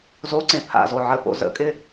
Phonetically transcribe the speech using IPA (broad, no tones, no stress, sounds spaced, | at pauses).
z o ǀ ẽ pʰ a̰ z o ʕ ə p o̰ z ə̰ kʼ ɪ